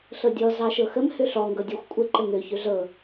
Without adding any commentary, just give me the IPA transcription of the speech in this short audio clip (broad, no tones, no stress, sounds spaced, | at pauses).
ɬ ɤ dʲ ɔ z ɑ ʃ ɤ x ə m h ø ɬ ɔ ŋ ɡ ɤ dʲ ɨ xʷ kʷʼ ə ǃ ə ŋ ø ç ø ɮ ɤ